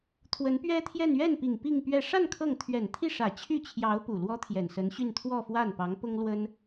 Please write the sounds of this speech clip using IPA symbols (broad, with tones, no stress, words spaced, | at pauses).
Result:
t̪ʰwə˧˥npɥɛ˥t̪ʰjɛ˥˧n ɥɛ˥˩npi˨˩ŋ pi˥˧ŋpɥɛ˥˧ ʂa˥˧n kʰɤ˥˩ŋ t̪ʰɥɛ˨˩nt̪ʰi˥˩ʂä˨˩ t͡ɕʰy˥˩t͡ɕʰjɑ˧˥ʊ̯ pu˨˩lwɔ˥t̪ʰjɛ˨˩n sə˧˥nɕy˥˧n t̪ʰwɔ˥˧fwa˥˩n pɑ˧˥ŋpʊ˥ŋlwə˥n